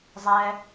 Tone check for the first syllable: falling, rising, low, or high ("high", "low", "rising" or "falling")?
high